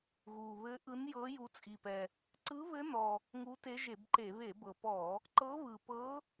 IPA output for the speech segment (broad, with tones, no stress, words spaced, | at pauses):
ɣu˨˩βɘ˧˥ ʔɯ˧˥njɤ˧˥ ju˧˥ t͡sʼi˨˩pɛ˨˩ | ǀɯ˧˥βɘ˧˥ nɔ˨˩ | ŋu˧˥te˧˥ʒe˧˩˧bǃe˧˩˧ βe˧˩˧bɤ˨˩pɔ˧˩˧ | ǃɤ˧˥βɯ˨˩pɤ˧˥